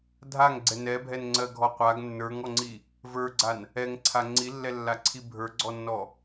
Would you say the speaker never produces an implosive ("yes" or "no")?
yes